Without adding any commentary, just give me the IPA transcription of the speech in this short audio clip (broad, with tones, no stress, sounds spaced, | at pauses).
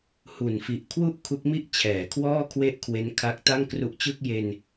h u˨˩ n f i˨˩ ʔ kʰ w u˥˩ ʔ kʰ u˦˥ k̚ m i˥˩ ʔ t͡ɕʰ ɛː˩˦ kʰ w ɔː˥˩ kʰ w e˥˩ ʔ kʰ w e˦˥ n kʰ a˦˥ k̚ t a˥˩ ŋ k r u˦˥ ʔ t͡ɕ ɯ˥˩ k̚ j e˧ n